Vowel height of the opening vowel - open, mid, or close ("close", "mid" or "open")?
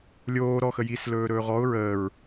mid